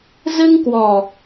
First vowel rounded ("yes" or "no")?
no